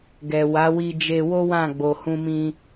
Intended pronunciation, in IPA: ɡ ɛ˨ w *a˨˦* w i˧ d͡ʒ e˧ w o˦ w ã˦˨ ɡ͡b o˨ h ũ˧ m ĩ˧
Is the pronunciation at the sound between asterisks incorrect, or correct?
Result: correct